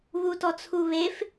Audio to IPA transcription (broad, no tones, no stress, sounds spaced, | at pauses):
β u t ɔ t͡sʰ u β e f